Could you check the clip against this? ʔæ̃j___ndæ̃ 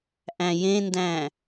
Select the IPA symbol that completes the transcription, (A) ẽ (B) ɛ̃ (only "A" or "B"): A